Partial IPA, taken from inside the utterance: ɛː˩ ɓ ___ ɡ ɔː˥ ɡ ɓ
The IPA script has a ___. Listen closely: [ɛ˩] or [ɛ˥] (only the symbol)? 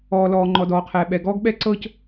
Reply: ɛ˩